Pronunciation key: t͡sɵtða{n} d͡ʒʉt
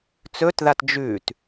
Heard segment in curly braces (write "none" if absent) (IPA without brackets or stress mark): t